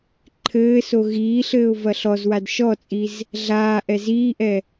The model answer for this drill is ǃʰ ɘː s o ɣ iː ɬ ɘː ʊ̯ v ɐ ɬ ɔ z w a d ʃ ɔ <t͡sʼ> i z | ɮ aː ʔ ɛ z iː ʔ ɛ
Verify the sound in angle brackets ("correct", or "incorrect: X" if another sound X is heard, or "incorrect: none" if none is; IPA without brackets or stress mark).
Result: correct